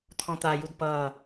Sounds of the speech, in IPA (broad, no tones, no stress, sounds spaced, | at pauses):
t̪ʰ ɔ̃ t̪ a j u d p ʌː